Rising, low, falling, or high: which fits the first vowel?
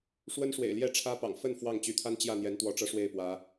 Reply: high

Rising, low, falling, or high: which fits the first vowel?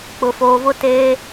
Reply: low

